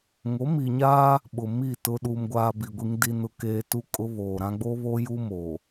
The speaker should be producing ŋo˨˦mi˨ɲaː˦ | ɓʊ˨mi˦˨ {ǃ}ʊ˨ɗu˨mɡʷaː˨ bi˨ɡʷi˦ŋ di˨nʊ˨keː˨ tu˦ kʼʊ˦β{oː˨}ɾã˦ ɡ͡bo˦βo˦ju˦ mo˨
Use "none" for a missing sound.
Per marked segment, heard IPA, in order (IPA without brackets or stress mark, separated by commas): t, oː˨